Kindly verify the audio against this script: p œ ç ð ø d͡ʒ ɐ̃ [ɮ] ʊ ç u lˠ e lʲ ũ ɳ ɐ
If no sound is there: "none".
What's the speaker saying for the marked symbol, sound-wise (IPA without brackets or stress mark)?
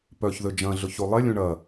ɮ